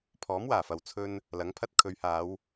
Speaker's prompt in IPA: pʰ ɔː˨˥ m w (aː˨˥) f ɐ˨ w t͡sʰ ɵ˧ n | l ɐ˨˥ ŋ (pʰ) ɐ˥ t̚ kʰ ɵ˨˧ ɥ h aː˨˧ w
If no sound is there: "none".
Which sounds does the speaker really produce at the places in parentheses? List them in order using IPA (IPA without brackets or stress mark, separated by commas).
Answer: aː˨˩, pʰ